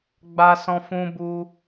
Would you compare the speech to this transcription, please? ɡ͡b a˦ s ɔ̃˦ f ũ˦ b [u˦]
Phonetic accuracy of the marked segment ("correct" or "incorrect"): correct